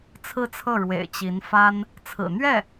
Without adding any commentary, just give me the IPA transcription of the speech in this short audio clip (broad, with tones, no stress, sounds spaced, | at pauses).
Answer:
t͡sʰ ɹ̩˥˧ t͡sʰ ɤ˥˩ ɻ w ḛ˨˩ ɪ̯ t͡ɕ i˧˥ n f a˥ n | t͡sʰ ɹ̩˨˩ n̪ ɥ ɛ˥˩